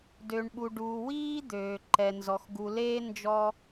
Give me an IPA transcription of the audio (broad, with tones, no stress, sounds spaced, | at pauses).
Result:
d ø˨ ɳ ɓ u˨ ɖ uː˨ w iː˥ d̪ øː˩ ǃ ɛ˩ n z ɔ˩ x ɡ u˨ l eː˥ n d͡ʒ ɔ˦